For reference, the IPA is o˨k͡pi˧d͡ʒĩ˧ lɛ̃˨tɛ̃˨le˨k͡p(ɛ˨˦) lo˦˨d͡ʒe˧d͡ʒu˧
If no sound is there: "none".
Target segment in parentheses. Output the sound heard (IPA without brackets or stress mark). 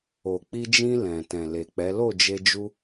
ɛ˨˦